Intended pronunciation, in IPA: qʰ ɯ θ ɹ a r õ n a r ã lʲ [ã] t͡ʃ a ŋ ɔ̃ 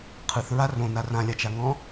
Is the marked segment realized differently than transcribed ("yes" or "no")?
yes